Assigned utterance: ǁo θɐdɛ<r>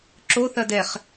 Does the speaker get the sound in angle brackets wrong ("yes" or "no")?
yes